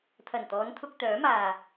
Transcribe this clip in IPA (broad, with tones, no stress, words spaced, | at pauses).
t̪ʰɐ˨˩nt̪ɔː˨˧n t̪ʰʊ˧k̚t̪œː˨˥maː˨